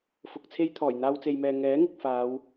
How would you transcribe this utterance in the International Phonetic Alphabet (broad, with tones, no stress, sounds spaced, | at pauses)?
f ʊ˧ k̚ t͡sʰ e˥ j t̪ʰ ɔː˨˩ j n̪ aː˧ w t͡s e˨ j m ɛː˨ ŋ ɛː˨˥ ŋ ɪ˨ k̚ f aː˨˧ w